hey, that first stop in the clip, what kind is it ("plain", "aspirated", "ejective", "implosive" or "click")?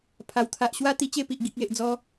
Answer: aspirated